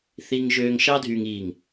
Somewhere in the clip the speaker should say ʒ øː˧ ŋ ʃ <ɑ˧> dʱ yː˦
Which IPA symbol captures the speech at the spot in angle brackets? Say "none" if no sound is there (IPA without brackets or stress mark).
ɑ˦